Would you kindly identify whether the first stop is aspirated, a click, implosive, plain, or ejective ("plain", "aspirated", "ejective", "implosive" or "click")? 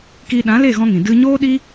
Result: plain